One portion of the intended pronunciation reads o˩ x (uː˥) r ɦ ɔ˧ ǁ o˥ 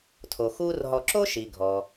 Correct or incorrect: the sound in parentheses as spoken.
correct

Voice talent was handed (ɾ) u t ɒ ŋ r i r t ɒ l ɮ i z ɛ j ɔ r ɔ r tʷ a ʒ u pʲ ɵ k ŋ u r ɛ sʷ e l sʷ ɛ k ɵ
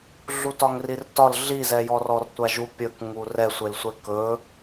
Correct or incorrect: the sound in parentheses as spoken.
incorrect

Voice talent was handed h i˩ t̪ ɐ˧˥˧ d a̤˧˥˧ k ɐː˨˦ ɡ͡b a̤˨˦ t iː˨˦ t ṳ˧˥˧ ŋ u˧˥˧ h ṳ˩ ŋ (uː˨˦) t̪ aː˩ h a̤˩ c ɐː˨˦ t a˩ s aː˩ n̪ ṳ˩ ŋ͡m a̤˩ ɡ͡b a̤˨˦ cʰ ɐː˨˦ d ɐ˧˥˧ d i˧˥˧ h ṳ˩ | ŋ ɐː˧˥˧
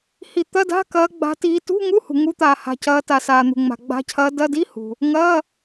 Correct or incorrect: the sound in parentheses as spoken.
incorrect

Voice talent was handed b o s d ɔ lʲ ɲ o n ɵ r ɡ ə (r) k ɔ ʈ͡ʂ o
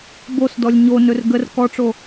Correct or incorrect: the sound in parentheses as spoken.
correct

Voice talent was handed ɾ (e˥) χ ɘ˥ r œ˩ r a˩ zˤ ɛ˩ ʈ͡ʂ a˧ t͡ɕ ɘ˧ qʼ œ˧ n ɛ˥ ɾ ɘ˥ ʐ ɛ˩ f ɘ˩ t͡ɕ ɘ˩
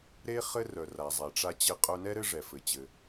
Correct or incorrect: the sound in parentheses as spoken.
correct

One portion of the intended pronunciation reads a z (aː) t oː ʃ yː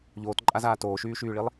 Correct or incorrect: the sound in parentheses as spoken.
correct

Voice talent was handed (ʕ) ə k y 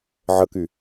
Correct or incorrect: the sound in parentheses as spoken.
correct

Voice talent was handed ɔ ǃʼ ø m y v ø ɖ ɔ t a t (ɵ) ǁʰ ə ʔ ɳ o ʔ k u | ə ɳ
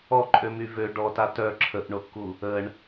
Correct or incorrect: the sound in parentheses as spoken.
incorrect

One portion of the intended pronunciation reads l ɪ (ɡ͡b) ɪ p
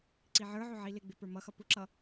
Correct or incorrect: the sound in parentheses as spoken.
correct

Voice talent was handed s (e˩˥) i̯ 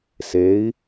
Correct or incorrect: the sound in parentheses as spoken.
correct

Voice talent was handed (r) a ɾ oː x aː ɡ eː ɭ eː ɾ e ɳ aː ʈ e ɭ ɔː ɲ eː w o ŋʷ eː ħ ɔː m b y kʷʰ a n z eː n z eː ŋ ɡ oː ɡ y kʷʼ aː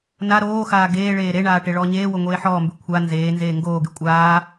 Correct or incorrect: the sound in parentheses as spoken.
incorrect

